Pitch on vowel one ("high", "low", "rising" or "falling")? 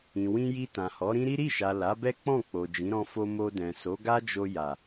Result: low